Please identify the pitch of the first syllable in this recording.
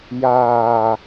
low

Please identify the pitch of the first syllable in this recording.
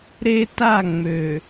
high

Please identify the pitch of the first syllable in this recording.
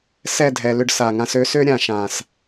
falling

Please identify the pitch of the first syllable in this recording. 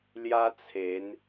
high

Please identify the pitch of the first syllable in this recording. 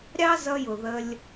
high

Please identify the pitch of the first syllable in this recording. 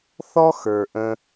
high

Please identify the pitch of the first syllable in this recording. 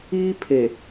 high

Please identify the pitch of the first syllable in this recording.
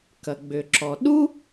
low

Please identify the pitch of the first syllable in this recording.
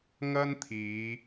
high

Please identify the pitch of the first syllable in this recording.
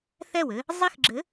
falling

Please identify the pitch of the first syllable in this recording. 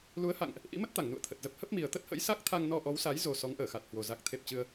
rising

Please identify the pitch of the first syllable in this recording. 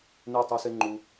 falling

